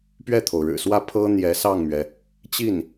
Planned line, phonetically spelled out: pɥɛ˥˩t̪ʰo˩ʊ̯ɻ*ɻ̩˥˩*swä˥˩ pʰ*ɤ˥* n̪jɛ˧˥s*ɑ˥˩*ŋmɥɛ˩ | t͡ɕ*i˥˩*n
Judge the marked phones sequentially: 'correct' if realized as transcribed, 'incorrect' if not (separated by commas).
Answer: incorrect, correct, correct, correct